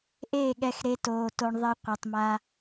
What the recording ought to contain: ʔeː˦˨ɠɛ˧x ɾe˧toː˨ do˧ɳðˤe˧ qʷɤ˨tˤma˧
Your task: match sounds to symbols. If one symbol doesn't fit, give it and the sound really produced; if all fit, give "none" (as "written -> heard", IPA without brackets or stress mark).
d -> t